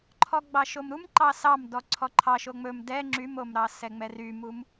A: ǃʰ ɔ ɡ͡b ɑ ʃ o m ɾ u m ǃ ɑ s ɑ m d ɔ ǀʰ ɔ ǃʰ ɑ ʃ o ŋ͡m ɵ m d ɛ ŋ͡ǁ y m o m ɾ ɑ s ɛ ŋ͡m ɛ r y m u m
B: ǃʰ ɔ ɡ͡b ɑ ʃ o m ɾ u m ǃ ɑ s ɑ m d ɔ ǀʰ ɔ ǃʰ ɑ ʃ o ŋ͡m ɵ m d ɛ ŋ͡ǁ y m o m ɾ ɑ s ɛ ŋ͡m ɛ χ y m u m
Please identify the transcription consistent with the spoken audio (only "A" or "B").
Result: A